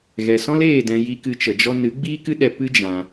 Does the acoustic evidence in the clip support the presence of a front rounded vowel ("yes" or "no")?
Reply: no